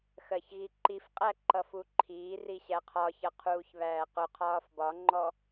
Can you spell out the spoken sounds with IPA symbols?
x ɜ ç ɣ i ǃ i f qʼ æ ǃ ʌ f u ǃʰ iː r i ɕ æ qʰ ɒ ç ʌ qʰ uː ç β æː q ʊ qʰ ɒː f b ɒ ŋ͡ǃ ɔ

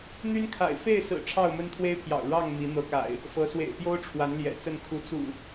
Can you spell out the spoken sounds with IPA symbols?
n̪ y˦ n kʰ a̰˨˩ ɪ̯ f e˥˨ ɪ̯ s ɹ̩˨˩ ʈ͡ʂʰ ɑ˥˨ ʊ̯ m ə˦ n t̪ʰ w e˦ ɪ̯ pʰ j ɑ̰˨˩ ʊ̯ ɻ ɑ˥˨ ŋ m i˨˦ n̪ ɤ˨˦ k a̰˨˩ ɪ̯ | f ɤ˨˦ s w ḛ˨˩ ɪ̯ p j o˦ ʊ̯ ʈ͡ʂʰ w a˨˦ n l j ɛ̰˨˩ t͡s ə˥˨ n kʰ u˨˦ t͡s ṵ˨˩

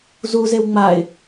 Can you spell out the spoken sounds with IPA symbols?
z u z e w ŋ͡m a ɪ̯

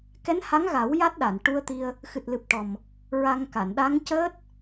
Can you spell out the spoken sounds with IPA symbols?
k ɛ˧˥ n h a˧˥ ŋ ɣ a˨˩˦ w j a˦˥ t̚ ɗ a˨˩˨ n ʈ u˧ ə̯ t̪ i˧ ə̯ | x ɨ˨˩ t̚ l ɨ˨˩ p̚ ʈ ɔ˨˩ m | ɹ a˧ ŋ k a˨˩˨ n ɗ a˧˥ ŋ c əː˦˥ t̚

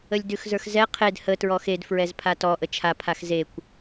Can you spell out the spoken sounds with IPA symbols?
ə lʲ d ʉ x z ə˞ x z ɛ qʰ e d h ə t ɹ ɔ x e d f ɹ ɛ z pʰ a t ɔ ʔ ə t͡ʃʰ a pʰ a x z e kʷ

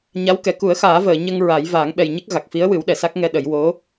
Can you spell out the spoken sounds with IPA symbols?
ɲ a˧˥ w k ɛ˨˩ k u˨˩˦ ə̯ x aː˨˩˦ v əː˨˩˨ ɲ ə˧ ŋ ɹ a˨˩˦ j v aː˨˩˦ ŋ ɓ ɛ˨˩ j ɲ ə˦˥ k̚ ɣ a˨˩ k̚ f i˧˥ ə̯ w ɨ˨˩˦ w ɗ ɛ˨˩˨ s a˦˥ k̚ ŋ ɛ˧ ɗ ə˨˩˦ j w o˧˥

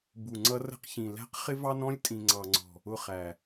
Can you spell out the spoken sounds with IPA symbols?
b u˨ ŋ͡ǀ ʌ˦ r ə̤˦ q ç ĩ˨ l æ̤˦ q χ ɪ˦ v ɑ˦ n ɔ̃˦ lʲ tʼ ĩ˨ ŋ͡ǀ ɑ˨ ŋ͡ǀ ɔ̤˨ | ʊ˦˨ χ æ˨

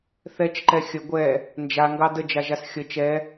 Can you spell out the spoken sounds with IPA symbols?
θ ɛ t͡ʃ ǃ ɛ xʲ ə ɡʷ ɛ | n d͡ʒ a ŋ ɡ ɑ d ə d͡ʒ a ʒ a s xʲ ə t͡ʃ ɛ

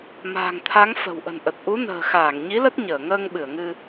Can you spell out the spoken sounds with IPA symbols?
m a̤ː˨˩ ŋ t̪ʰ a˨˦ ŋ f ə̤˨˩ w ʔ ə̤˨˩ n ʔ ə˨˩ t̚ ʔ u˨˦ n ə̤ː˨˩ x aː˧˩ ŋ ɲ i˨˦ l ə˦˥ t̚ ɲ əː˧˩ ŋ əː˧ ŋ ɓ ɨ˧˩ ə̯ ŋ ɨ˧

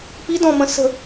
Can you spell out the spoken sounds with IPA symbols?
p i d ɔ̃ m ə̃ s ə̤

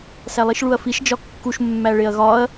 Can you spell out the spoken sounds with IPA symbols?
s æ lˠ i ʃ ɭ u ɐ̯ f i ʃ d͡ʒ ɒ kː u ʃ mː æ ɭ e ɐ̯ ɣ ɒ ɐ̯

